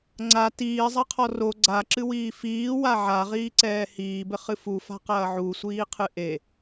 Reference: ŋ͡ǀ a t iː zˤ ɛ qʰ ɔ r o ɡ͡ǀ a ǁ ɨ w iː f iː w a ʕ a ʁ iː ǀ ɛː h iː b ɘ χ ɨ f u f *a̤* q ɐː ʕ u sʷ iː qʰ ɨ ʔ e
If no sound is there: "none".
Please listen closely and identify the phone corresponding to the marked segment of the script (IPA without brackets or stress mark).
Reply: a̤